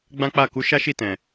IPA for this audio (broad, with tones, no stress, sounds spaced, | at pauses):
ɡ͡b ã˦ k͡p a˦˨ k u˨˦ ʃ a˦ ʃ i˦˨ t ɛ̃˨